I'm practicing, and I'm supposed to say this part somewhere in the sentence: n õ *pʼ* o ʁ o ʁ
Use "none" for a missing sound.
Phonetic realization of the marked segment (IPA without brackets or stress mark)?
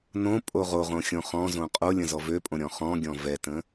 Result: pʼ